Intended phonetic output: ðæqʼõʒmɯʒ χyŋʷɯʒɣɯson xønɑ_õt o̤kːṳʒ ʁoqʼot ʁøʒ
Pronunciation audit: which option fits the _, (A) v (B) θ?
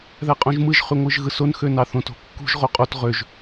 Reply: B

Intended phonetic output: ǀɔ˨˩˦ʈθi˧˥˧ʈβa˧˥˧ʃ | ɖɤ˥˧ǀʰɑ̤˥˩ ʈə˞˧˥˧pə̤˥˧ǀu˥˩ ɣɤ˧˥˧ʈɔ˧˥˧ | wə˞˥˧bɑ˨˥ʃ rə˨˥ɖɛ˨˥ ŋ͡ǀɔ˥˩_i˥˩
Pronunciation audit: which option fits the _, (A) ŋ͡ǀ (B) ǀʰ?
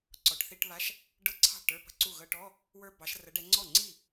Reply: A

